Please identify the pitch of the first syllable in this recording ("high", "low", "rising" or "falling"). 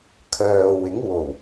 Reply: low